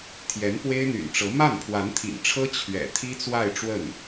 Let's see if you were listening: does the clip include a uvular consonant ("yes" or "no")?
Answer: no